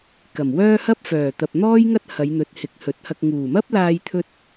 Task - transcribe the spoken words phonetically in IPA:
k ɐ˨˩ m w œː˥ h ɐ˥ p̚ f œː˨˩ t̪ ɐ˨ p̚ n̪ ɔː˥ j ŋ ɐ˥ t̚ h ɐ˨˧ j n̪ ɵ˨˥ t̚ h ɪ˨˥ k̚ h ɵ˨˥ t̚ h ɐ˧ k̚ ŋ uː˨˩ m ɐ˥ p̚ l aː˧ j t̪ʰ ɵ˧ t̚

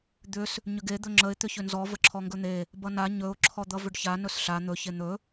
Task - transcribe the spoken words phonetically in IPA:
d̪ ʏ s | ɲ ʏ ɡ e d̪ ɵ ŋ͡ǁ ə ɪ̯ t̪ ʏ ç ʏ n z ɔ v ə ǁʰ ɔ ŋ ɡ ɵ n̪ e | b ʌ n a ɲ ɵ ʊ̯ ǁʰ ɔ d̪ ʌ v ʏ ɖ ç a n ɵ s ɬ a n̪ ɵ ç e n̪ ɵ

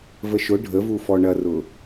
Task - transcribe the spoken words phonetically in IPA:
v ə ʃ ʊ ɖʱ ə v u f ɔ ɳ ɐ r ʊ

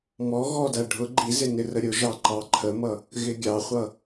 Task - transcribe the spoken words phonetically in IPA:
m ɔ ɣ ɔ d æ ɖʱ ʊ ɡ͡ǃ i z ɪ n ɪ r ə ɾʲ ʊ ʒ ɑ ǃ ɑ ǃʰ ə m ʌ | ɣ ɪ ɡʲ ɑ χʷ ʌ

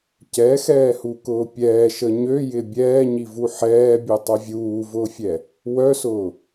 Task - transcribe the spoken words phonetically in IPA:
c ɛ x ɛː h u k ʊː pʲ ɛː ʃ ə ɲ ø j ɪ bʲ ɛː ɲ i v u ħ ɛː bʲ u tˤ u vʲ uː v ʊː fʲ ɛ | w œ s ʊː

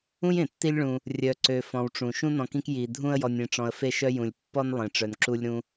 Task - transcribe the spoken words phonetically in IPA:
ũ˥ j ẽ˩ tː i˦ lʲ ɭ ũ˨ | rʲ œ˨ ǀ ø˨ f ɔ̃˨ w ʈ͡ʂ ũ˩ ʃ ũ˥ n ɔ̃˨ k ĩ˦ k j i˨ dʱ ũ˦ ə̯ j ɔ˨ nʲ ẽ˨ ʈ͡ʂ ɔ̃˨ ə̯ f e˥ ʃ œ˥ j ũ˩ lʲ pː ɔ˦ n lˠ ẽ˩ ʈ͡ʂ œ˩ n ǁ u˦ lʲ ɾ ũ˦

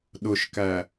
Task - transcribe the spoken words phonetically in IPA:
ɗ ʊ ʃ k æ

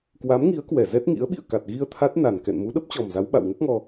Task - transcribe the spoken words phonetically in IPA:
k w a˨˦ m ŋ i˨˦ ə̯ k w ɛ˧˩ z ɛ˦˥ t̚ ŋ ḭ˧˥ ə̯ ɓ ḭ˧˨ ə̯ k a˨˩ t̚ ɣ i˧ ə̯ t̪ʰ a˦˥ t̚ n a˨˩ n k ɛ̰˧˨ n m u˨˦ ɗ ə˦˥ p̚ t͡ɕ ɔ˨˩ m z a˨˦ w ɓ a̰˧˨ w ŋ ə˦˥ p̚ ŋ ɔ˧

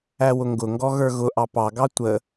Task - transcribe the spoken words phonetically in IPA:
æ w ʊ ŋ ɡ ʊ ŋ ɡ ɔ ɣ ə˞ ɣ ʊ ʔ ɑ p ɑ ɡ ɑ tʷ ə

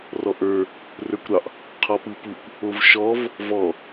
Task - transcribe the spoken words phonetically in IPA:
r ɔ ʔ ə˞ | r ə˞ kʷ ɾ ɑ ʔ | qʰ ɔ p ɯ p u kʷ | o v ʃ ɔ v | v ɔ

